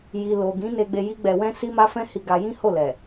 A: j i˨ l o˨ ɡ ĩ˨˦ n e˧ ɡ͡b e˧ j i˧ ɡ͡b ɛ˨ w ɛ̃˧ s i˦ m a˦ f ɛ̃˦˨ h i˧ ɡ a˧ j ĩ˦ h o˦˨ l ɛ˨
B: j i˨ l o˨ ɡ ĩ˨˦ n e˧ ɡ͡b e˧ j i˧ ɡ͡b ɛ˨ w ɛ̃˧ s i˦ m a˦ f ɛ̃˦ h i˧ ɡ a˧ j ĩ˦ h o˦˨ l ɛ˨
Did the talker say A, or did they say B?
B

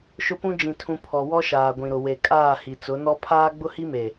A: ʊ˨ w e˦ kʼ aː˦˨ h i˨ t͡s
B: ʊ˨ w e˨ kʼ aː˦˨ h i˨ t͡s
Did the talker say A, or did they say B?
B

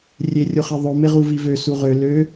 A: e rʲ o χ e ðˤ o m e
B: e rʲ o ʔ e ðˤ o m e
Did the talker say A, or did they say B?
A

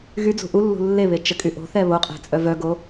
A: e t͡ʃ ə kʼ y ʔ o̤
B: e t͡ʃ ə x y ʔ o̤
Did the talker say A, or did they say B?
A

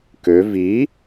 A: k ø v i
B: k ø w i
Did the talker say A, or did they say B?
A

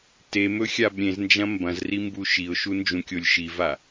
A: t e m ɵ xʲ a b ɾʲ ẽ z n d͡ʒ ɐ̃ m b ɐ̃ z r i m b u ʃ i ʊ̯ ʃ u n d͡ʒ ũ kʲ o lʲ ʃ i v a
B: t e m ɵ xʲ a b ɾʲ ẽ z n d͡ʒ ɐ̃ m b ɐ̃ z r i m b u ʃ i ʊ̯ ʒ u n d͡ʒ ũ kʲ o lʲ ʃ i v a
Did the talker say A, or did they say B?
A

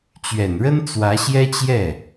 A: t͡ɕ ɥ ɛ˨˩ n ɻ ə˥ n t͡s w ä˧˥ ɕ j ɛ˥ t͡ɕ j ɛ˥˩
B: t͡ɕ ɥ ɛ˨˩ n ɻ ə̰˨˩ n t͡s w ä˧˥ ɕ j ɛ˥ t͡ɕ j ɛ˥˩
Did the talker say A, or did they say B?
A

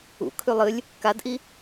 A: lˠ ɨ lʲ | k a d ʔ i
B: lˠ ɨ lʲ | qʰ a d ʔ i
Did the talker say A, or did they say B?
A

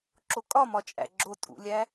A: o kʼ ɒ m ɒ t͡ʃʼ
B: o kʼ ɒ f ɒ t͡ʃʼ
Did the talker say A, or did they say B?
A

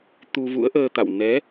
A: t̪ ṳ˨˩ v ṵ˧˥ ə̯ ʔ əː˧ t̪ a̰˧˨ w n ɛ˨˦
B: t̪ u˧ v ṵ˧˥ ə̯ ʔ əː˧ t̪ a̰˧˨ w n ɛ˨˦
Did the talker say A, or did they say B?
B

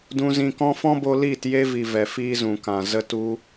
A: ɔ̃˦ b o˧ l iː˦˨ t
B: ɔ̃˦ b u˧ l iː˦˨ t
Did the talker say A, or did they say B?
A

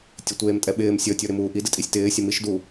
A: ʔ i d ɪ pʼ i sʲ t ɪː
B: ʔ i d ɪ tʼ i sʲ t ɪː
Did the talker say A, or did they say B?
B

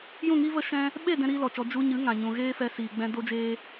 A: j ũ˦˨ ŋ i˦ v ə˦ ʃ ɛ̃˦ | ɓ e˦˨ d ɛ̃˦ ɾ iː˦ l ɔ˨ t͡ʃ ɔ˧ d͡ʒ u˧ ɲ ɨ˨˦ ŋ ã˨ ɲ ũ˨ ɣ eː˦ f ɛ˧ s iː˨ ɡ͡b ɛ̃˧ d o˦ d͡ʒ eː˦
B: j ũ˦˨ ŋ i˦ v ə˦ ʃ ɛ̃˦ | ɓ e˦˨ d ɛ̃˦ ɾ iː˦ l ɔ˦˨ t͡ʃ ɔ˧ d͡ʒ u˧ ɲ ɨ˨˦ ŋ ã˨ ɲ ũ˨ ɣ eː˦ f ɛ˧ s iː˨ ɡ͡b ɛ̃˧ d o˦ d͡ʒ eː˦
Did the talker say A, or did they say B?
A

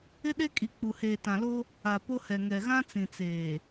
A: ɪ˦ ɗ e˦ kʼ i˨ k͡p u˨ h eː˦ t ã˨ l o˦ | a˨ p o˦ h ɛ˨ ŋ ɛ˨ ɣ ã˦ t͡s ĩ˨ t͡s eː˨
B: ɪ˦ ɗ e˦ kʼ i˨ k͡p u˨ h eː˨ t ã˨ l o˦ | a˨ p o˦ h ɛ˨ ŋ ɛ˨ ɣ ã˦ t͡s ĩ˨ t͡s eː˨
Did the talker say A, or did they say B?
B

